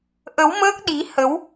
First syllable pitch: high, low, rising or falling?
rising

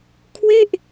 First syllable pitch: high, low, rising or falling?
falling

